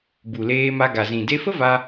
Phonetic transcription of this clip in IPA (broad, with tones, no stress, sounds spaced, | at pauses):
b u˨ l eː˧ m a˧ ɡ a˨ z ĩ˨ d e˧ f ə˦ v a˧